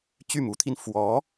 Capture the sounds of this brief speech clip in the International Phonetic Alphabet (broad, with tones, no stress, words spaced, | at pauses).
t͡ɕy˥˩mu˧˥t̪ʰi˧n fwɔ˧˥